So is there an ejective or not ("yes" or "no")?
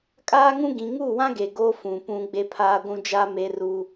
yes